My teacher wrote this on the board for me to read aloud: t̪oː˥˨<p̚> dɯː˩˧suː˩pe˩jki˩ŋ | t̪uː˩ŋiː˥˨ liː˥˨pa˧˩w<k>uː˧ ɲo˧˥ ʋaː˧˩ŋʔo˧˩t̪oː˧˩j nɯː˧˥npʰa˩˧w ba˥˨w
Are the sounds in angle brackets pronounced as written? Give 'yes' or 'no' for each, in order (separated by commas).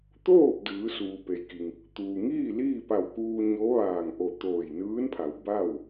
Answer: yes, yes